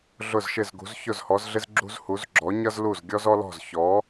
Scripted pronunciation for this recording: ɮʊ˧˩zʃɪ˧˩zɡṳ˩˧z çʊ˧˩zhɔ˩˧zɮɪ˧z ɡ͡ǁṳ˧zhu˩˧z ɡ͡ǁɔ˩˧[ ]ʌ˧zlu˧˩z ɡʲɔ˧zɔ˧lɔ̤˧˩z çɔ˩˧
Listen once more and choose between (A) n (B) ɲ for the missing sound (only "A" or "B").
B